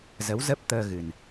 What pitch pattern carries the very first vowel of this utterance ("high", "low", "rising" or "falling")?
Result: rising